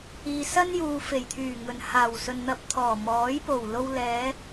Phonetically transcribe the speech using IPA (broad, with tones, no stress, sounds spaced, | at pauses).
iː˨ s ɐ˥ n j uː˨ f e˨˩ j t̪ʰ yː˨˩ ŋ ɵ˨˩ n h aː˨˩ w s ɵ˨ n n̪ ɐ˧ p̚ t̪ʰ ɔː˨˩ m ɔː˨˥ j p o˨˩ w l o˧ w l ɛː˨˧